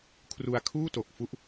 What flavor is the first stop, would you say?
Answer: aspirated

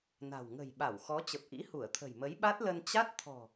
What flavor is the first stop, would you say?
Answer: implosive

